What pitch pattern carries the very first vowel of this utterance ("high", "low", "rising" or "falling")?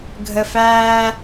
low